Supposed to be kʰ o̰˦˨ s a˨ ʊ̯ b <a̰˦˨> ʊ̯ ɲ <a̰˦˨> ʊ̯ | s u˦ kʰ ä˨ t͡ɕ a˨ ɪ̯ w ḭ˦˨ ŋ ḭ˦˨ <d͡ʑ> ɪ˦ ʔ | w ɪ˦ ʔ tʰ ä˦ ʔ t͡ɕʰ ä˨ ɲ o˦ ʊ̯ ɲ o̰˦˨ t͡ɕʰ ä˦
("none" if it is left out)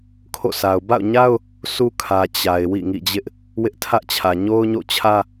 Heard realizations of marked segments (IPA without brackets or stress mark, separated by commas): a̰˦˨, a˦, d͡ʑ